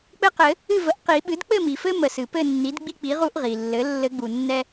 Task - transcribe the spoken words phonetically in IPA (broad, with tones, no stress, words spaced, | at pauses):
k͡pɘ˦qɘ˨˩˦ | ɨ˥˨və˩˥ʔ qi˨˩˦ɓɨ˩˥d k͡pɘ˥˨mi˩fɘ˦ mə˨˩˦sɨ˩ pɘ˥˨nːi˩˥dɡ͡bi˦k͡pi˩˥ ʁu˦ʔʁi˩lːɘ˩˥ lːɘ˨˩˦ɡ͡bu˩ nːɛ˦